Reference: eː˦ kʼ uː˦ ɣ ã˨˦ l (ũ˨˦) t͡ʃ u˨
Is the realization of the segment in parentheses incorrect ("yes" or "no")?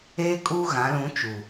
no